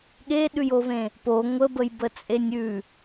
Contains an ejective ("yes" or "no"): yes